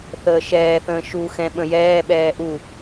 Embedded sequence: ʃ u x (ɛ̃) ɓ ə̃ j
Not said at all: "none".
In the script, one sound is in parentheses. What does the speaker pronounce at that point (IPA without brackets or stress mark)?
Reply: ɛ̃